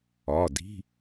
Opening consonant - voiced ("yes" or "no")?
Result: yes